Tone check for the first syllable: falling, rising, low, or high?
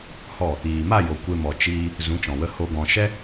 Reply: falling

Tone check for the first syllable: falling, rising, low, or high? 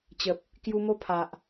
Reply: low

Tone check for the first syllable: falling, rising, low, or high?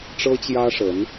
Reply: high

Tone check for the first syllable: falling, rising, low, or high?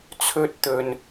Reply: high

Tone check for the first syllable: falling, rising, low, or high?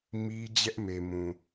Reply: high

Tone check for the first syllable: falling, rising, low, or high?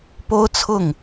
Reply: high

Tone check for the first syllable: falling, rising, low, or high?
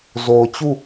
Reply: low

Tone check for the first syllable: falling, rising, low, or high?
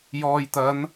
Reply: low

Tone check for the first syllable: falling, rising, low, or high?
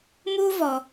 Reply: high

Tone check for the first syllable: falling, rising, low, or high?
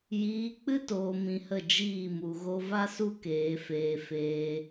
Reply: rising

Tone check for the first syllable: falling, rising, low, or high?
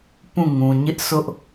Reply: falling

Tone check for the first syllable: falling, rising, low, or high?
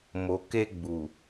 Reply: low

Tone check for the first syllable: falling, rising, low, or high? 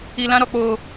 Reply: low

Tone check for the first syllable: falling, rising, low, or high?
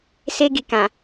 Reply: high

